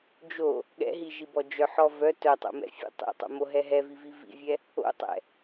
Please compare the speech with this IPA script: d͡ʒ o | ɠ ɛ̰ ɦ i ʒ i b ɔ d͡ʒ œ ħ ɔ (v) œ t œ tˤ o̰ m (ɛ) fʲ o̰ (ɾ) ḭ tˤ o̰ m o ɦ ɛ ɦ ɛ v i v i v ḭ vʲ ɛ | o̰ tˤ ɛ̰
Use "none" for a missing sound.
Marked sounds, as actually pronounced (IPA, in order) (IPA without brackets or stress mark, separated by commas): v, ɛ̰, tˤ